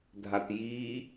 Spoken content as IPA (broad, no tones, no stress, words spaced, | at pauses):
dʱatji